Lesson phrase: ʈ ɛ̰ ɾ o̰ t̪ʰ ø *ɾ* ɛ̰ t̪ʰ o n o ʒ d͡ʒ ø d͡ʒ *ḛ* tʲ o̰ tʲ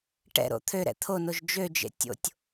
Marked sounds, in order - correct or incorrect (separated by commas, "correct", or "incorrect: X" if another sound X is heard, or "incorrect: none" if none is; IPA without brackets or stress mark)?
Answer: correct, correct